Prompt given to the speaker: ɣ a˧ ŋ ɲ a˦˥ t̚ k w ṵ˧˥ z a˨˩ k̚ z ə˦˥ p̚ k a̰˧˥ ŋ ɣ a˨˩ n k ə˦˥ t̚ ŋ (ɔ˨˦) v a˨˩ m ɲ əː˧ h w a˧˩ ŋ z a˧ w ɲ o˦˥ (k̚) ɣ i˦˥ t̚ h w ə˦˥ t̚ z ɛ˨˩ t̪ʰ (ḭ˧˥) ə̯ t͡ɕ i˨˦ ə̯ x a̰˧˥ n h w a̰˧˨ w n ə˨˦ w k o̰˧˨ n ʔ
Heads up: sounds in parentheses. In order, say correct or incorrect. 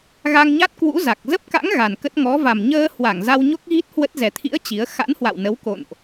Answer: correct, correct, correct

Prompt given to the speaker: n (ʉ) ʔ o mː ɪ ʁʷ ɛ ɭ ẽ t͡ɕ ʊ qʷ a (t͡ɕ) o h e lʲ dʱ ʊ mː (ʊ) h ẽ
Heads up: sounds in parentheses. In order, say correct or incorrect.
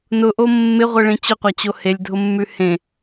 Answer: incorrect: ʊ, correct, incorrect: ʉ

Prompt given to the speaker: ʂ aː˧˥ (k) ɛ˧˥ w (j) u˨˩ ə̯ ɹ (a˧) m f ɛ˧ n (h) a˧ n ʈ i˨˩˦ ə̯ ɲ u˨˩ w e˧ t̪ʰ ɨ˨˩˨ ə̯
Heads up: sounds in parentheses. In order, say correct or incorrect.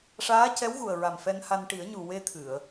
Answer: incorrect: c, incorrect: ɣ, incorrect: a˨˩, correct

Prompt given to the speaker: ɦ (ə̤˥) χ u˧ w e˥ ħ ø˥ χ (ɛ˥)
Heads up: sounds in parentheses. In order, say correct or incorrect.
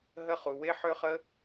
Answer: incorrect: ə˥, incorrect: ə˥

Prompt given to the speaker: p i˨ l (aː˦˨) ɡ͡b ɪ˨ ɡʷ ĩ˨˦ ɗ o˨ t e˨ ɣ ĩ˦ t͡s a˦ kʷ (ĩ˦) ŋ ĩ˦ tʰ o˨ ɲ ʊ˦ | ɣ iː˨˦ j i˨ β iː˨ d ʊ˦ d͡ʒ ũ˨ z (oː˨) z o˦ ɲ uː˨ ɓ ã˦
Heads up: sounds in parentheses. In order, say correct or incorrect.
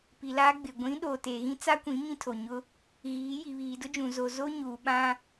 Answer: incorrect: aː˦, incorrect: ĩ˨˦, incorrect: o˨

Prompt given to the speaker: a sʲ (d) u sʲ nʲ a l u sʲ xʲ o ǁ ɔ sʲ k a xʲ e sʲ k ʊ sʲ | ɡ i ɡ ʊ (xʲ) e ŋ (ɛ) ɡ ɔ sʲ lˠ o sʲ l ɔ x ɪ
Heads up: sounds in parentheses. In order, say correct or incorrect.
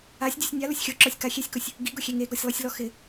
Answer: incorrect: dʲ, correct, incorrect: e

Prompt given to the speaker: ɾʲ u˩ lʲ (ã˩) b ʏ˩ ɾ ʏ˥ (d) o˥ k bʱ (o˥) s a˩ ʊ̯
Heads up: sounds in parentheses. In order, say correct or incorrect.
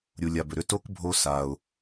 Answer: incorrect: a˩, incorrect: t, correct

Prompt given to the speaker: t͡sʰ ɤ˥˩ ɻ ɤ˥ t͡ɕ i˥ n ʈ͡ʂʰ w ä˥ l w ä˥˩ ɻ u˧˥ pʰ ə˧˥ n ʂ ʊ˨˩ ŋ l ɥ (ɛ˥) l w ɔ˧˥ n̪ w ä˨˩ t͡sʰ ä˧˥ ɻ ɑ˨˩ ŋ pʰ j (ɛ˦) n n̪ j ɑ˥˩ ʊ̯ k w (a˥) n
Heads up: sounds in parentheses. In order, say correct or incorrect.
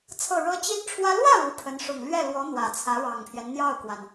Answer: incorrect: ɛ˥˩, correct, incorrect: a˩

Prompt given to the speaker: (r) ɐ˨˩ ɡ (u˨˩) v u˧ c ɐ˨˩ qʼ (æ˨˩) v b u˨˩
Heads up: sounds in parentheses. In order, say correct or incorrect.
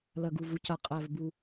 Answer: incorrect: l, correct, correct

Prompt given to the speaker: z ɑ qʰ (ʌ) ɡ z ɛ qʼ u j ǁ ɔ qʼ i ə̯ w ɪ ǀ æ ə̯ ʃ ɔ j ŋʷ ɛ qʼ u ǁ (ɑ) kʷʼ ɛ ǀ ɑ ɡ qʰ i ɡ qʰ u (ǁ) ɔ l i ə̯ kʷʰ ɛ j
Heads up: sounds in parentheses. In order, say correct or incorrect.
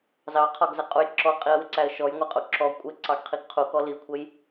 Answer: incorrect: ɒ, incorrect: ɔ, incorrect: k

